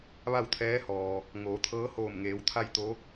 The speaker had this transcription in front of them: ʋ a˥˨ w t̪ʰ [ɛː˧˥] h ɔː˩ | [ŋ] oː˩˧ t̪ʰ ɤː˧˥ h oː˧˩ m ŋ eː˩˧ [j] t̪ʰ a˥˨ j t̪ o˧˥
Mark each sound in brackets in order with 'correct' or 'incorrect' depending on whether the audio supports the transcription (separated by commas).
correct, correct, incorrect